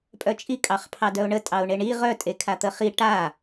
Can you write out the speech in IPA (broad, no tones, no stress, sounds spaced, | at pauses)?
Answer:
pʼ œ t͡ʃʼ i kʼ ɑ χ pʰ ɑ d œ ʊ̯ ɳ ə tʼ ɑ ʊ̯ ɳ e ɳ i ʁ œ tʼ e kʰ a t̪ ə χ i ʈ a